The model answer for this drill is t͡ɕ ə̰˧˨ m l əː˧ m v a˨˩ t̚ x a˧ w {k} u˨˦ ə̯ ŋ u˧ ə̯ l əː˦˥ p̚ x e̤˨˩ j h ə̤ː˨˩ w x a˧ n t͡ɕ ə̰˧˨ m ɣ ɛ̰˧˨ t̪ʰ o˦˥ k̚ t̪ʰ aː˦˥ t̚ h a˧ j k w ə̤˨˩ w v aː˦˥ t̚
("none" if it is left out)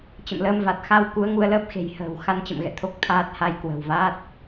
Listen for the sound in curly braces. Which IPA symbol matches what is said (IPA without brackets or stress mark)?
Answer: k